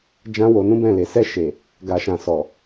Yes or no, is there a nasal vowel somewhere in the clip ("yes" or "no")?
yes